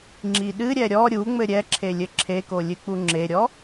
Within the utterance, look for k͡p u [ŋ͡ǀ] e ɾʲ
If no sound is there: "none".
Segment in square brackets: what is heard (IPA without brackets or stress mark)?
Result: ŋ͡ǁ